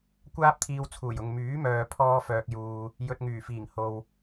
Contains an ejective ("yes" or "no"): no